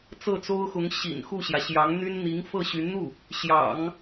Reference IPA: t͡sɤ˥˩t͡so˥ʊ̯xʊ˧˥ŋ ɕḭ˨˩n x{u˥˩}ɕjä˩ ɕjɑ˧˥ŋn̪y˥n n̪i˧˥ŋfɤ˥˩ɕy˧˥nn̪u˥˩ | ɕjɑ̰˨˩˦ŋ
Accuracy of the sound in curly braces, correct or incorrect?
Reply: correct